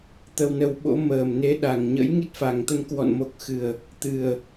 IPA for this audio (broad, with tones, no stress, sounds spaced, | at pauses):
t̪ ə˧ w n ə˧ w ɓ o̰˧˥ m əː˨˩ m n e˨˦ ɗ a˨˩ ŋ ɲ ə̰˧˥ j ŋ i˦˥ t̚ f a˨˩ ŋ t̪ ə˧ n k w ɔ̰˧˨ n m o˨˩ k̚ x ɨ˨˩ ə̯ | t̪ ɨ˨˩ ə̯